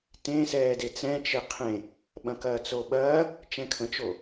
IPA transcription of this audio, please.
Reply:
t ẽ s ɛː d e t͡s ɛ̃ t͡ʃ e qʰ ẽ | ɓ ɐ̃ k ɐː t͡s o ɓ ɐː | t͡ʃ ɛ̃ kʰ ə̃ t͡ʃ o

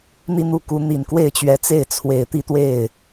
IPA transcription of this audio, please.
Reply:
n̪ i˥˧ n̪ u˥˩ k u˧˥ n̪ i˨˩ n k w e˥˩ ɪ̯ t͡ɕ ɥ ɛ˧˥ t͡s e˥˩ ɪ̯ t͡sʰ w e˨˩ ɪ̯ t̪ i˥˧ t̪ w e˥˩ ɪ̯

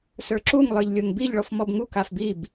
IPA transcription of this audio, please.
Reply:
s ə˞ ǁ u ŋ lˠ ə˞ ʎ lʲ o ŋ b i ʎ ɭ ɔ f m ɔ b ŋ u k a f b i b

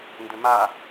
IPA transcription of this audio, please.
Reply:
n d ʏ m a

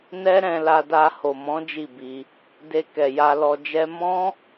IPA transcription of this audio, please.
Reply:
n ɛ˦ ɾ ɛ̃˧ l a˧ d a˧ h o˨ m ɔ̃˨˦ d͡ʒ i˦˨ b i˧ | d e˧ k ɛ˨ j a˧ l ɔ˧ d͡ʒ ɛ˦ m ɔ̃˦

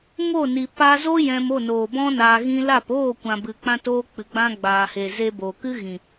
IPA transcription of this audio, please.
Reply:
ŋ o˦˨ n i˨ p a˧ z o˦ j ɛ̃˧ m o˦˨ n oː˨ b ɔ̃˦ n aː˧ ɣ ĩ˦ l a˦˨ p oː˦˨ kʷ ã˨ b ɨ˨ k͡p ã˧ t oː˧ k͡p ɨ˨ ɡ͡b ã˧ ɡ͡b aː˨ h e˨ z e˧ b o˨ k ɨ˦ ɣ ĩ˨

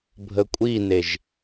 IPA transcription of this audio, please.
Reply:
bʱ ə kʷʼ i n e ʒ

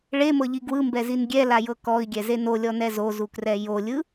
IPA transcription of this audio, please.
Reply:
ɭ e m ɤ ʎ i ɡ w ɯ m b ɛ z i n ɡʲ ɛ l a j ɤ k ɔ i̯ ɡʲ ɛ z e n o lʲ ɔ n ɛ z o z u k r ɛ j o lʲ ɯ

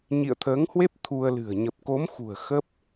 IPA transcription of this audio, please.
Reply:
ɲ ḭ˧˨ ə̯ t̪ʰ əː˨˦ ŋ h w e˦˥ p̚ t̪ʰ u˧ ə̯ l ɨ̤˨˩ ə̯ ɲ ə˨˩ p̚ k o˨˦ m x ṳ˨˩ ə̯ x ə˦˥ p̚

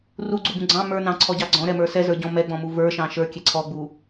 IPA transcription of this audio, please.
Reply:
r u ɡ͡ǀ u b ũ ɡ͡ǀ ɑ̃ m ə˞ n ɑ̃ ǀʰ ɔ ɟ ɑ ɡ͡ǀ ɔ̃ ɾ ɛ m ə˞ s ɛ z ə˞ ɟ ɔ̃ m ɛ ɡ͡b ɔ̃ m u v ə˞ ʃ ɑ̃ ʃ ə˞ kʲ ɛ ǀʰ ɔ ɡ͡b u

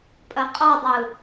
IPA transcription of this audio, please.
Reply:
pʼ ɐ qʼ ɔ dˤ ɯ

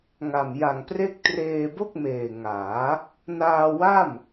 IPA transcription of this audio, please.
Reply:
ŋ a˨˩ m j a˨˩ ŋ p r e˥˩ k̚ t r eː˧ b o˥˩ k̚ m eː˨˩ ŋ aː˩˦ | n aː˧ w a˥˩ m

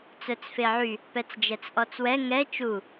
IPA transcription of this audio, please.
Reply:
t͡s œ t͡s f e ʕ y | p ɛ t͡s d͡ʒ ɛ t͡s ʔ ɔ t͡s w ɛ ŋ ɛ t͡ʃ u

